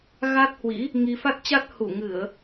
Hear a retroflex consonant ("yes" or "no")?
no